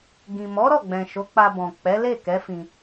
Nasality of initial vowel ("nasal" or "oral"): nasal